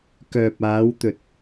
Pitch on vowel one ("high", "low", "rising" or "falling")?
low